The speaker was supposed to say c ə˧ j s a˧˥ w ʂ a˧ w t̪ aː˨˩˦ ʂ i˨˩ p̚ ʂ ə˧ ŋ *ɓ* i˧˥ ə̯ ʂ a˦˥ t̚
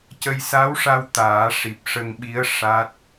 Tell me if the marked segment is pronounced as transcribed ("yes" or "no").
yes